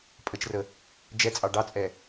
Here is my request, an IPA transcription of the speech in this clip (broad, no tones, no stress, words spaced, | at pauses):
pʼət͡ʃrə | d͡ʒɛt͡sʼɑ ɖɑt͡sʼɛ